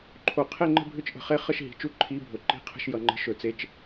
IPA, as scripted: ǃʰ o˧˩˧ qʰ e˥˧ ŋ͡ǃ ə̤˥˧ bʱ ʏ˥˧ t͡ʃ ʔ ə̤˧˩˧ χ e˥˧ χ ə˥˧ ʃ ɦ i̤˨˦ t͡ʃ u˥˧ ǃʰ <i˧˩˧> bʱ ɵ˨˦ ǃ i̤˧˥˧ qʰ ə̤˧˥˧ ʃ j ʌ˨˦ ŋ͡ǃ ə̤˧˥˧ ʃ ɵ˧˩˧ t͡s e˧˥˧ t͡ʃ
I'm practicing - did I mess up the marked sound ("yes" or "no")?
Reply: yes